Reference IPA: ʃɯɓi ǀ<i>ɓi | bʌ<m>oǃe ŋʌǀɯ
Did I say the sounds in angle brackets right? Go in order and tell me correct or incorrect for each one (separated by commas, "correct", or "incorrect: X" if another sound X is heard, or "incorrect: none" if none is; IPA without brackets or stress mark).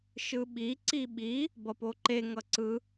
correct, incorrect: p